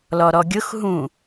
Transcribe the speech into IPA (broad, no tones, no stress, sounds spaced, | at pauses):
l ɔ ɾ ɔ ɡʲ ʊ x ɦ ũ